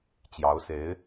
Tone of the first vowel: rising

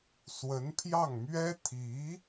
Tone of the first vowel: rising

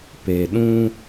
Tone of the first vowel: low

